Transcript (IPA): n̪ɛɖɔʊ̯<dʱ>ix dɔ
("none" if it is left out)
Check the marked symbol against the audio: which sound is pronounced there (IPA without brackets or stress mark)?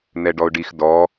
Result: ɖ